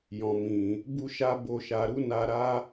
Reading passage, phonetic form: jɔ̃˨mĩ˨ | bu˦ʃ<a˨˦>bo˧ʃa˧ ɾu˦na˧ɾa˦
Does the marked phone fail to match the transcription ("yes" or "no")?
yes